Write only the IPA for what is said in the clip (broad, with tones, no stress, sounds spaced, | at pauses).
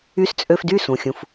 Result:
y˧ s t͡sʼ ø˧ f d y˥˩ s ũ˩ xʲ ũ˩ f